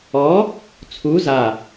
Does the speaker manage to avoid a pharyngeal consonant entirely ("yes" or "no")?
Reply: yes